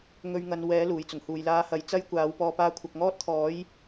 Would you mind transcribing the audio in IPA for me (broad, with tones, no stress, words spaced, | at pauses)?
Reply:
ŋɵ˧ɥŋɐ˨˧n wɛː˨˥luː˨˩jt͡sʊ˨˩ŋ huː˨˩jlaː˨˥ hɐ˨˥jt͡sɐ˥jkʷaː˨˥w pɔː˨paː˧ kʷʰɐ˧k̚ ŋɔː˥t̚t̪ʰɔː˨˥j